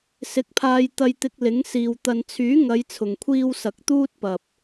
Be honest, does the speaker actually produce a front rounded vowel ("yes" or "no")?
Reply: yes